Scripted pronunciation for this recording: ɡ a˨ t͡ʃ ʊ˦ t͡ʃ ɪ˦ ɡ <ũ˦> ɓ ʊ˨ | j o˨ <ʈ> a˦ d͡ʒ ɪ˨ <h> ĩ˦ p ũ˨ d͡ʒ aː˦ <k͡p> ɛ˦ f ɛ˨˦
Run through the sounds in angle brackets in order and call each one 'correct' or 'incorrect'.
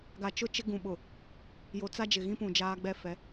incorrect, incorrect, incorrect, incorrect

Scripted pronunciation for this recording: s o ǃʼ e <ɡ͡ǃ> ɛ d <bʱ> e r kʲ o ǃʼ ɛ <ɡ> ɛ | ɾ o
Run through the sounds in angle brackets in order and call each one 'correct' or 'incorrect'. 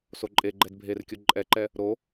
correct, correct, incorrect

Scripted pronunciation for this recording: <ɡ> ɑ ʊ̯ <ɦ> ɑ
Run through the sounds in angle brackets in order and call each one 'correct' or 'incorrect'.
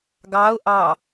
correct, incorrect

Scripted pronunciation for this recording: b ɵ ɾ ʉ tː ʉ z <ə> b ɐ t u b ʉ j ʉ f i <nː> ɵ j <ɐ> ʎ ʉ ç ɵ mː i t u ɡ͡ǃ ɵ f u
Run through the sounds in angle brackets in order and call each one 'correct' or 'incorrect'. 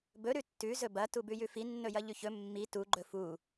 incorrect, correct, correct

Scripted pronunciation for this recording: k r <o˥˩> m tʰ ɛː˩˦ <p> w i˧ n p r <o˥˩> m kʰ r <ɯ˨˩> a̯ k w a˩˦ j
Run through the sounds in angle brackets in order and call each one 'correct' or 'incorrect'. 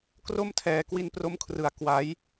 correct, incorrect, incorrect, incorrect

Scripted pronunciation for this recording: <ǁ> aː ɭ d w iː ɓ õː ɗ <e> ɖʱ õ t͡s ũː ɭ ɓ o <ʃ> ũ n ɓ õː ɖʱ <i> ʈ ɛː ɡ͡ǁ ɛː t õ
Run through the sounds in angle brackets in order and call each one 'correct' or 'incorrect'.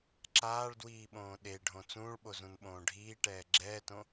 correct, correct, incorrect, incorrect

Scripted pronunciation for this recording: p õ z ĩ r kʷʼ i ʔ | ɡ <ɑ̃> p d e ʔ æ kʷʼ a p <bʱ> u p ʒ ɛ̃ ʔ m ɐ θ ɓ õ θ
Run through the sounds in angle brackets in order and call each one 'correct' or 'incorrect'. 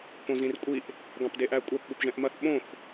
correct, incorrect

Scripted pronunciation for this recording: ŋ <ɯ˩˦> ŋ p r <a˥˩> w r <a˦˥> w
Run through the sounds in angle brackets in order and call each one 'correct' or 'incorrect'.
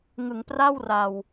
correct, correct, incorrect

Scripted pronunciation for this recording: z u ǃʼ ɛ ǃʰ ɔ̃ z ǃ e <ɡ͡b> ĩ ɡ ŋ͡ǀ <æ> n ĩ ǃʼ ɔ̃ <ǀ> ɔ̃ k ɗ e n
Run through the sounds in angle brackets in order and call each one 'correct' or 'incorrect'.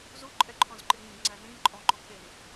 incorrect, correct, incorrect

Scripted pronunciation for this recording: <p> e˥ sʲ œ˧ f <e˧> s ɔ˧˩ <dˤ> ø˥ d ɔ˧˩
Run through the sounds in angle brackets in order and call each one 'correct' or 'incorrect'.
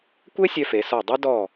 incorrect, incorrect, correct

